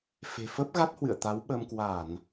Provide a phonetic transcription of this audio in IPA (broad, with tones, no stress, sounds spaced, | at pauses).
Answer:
f e̤˨˩ f ə˦˥ p̚ ɣ a˦˥ t̚ h w ɨ̰˧˨ ə̯ t̪ a˨˦ w ɓ ə˧ m k w a˧˩˨ n